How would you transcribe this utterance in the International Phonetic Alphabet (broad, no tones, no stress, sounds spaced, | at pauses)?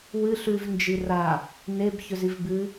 w ɨ ɬ ʉ v n d͡ʒ i r a | n e b ç ɵ z i v b ɨ